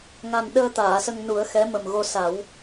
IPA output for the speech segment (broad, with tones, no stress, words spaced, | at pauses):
ŋa˨˩n ɗəː˧ t̪aː˨˩˨sə˧ŋnu˨˩˦ə̯xɛ˧˥ mə˨˩mɣo˧ sa˨˩˦w